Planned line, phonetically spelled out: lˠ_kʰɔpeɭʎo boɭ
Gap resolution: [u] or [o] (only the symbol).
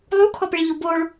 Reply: u